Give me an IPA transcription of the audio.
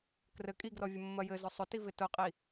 k r ɘ kʼ i ɡ r ɔ vʲ ʊ mː ɐ j ɘ z ʊ sˤ ʊ t i v ɪ t ʊ qʼ i

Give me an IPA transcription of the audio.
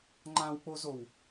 ŋ͡ǃ ã w k͡p o z o w

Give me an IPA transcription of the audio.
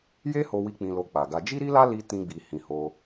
j e˦ h o˧ w i˧ k͡p ĩ˧ l o˧ k͡p a˨ ɡ a˧ d͡ʒ i˦ ɾ i˦ l a˦ l i˦ t ĩ˦ ɡ͡b i˧ h ĩ˨ h o˧

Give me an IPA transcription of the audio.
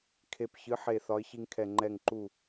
kʰ e˧˩ p ç ɨ˨˥ ħ e˧˩ θ ɒ˨˥ ɪ̯ ç i˧ ŋ kʰ ɛ˧˩ ŋ͡ǃ ɛ˧˩ ŋ ǃ u˧˩

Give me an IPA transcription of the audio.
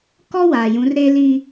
k ɔ˦ w aː˨ j ũ˨˦ r ɾ e˦ l i˦

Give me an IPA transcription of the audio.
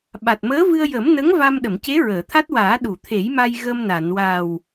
ɓ a˨˩ t̚ m əː˧˥ v ɨ˧ ə̯ j ə˨˩˦ m n ə˧˥ ŋ v a˧ m ɗ ə˨˩˨ m c e˧˥ ɹ əː˨˩˨ t̪ʰ a˦˥ t̚ w aː˨˩˦ ɗ u˨˩˨ t̪ʰ e˨˩˦ j m a˧ j ɣ ə˧ m n a˨˩˨ n w a˨˩ w

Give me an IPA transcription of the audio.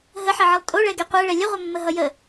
ɦ ə ħ ʌ ʕ ə lˠ tʼ o ɭ ɛ ɡ ɛ qʷ ɛ ɭ ɛ lʲ ə ʁʷ ʌ mː ə ɦ ʌ j ə

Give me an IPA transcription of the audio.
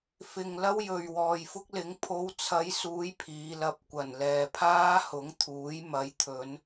f ɪ˨ ŋ l ɐ˥ w j ɵ˨ ɥ w ɔː˨ j f ʊ˥ k̚ l ɪ˨˥ ŋ pʰ o˨˧ w t͡sʰ ɐ˨˧ j s uː˨˧ j pʰ iː˨˧ l ɐ˧ p̚ kʷ ɐ˨˩ n l ɛː˨ pʰ aː˥ h ʊ˨˥ ŋ t̪ʰ uː˨˥ j m ɐ˨˥ j t̪ʰ ɵ˨˧ n

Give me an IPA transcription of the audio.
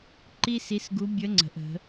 ǃ i˥ s i˧˥ s ɡ u˧˥ bʲ ə˧˥ ŋ͡ǀ ə̤˩˧ ʔ ə̤˩˧

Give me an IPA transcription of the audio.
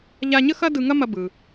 ʎ a˧ ɲ ə˥ x ɐ˥ d ɯ˧ ŋ ɐ˥ m ɐ˧ b ɯ˩

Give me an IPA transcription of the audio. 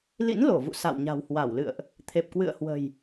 l ḭ˧˥ n l o˧˩ v ṵ˧˨ s a̰˧˨ w ɲ a̤˨˩ w h w a˧˩ w l ɨ̰˧˨ ə̯ ʔ | t̪ʰ e˨˩ p̚ k w ɨ̰˧˨ ə̯ h w ə̤˨˩ j

